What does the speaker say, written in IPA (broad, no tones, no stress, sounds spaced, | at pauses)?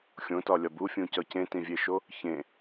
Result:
xʲ õ t ɒ lʲ ɒ b u fʲ ũ c ɒ c ẽ t ĩ vʲ e ʃ o | ç ẽ